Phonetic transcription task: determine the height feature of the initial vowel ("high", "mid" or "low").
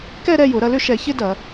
mid